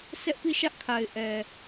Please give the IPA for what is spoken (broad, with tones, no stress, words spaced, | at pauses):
sɛ˦ʔpi˦˨ʃä˦ʔkʰa˨ɪ̯ ʔɛ˨